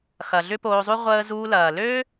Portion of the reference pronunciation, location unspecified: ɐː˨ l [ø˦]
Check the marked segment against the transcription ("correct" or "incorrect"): correct